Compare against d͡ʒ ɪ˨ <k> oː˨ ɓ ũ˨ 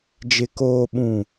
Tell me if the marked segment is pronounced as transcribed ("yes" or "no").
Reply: yes